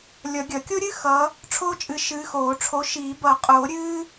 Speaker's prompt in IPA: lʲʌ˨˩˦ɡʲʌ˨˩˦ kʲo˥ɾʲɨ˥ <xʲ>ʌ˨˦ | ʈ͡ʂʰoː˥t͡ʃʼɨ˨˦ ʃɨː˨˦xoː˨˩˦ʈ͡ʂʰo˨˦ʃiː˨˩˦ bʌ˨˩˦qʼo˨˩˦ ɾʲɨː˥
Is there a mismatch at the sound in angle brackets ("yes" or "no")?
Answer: yes